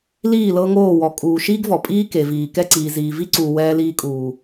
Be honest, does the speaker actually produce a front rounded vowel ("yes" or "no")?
no